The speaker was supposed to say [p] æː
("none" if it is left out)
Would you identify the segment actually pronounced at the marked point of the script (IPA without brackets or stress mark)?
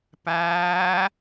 p